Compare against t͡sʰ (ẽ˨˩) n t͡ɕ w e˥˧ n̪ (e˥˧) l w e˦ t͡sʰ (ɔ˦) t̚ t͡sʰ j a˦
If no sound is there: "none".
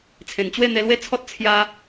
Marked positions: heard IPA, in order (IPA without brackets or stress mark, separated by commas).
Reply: ẽ˨˩, e˧, ɔ˦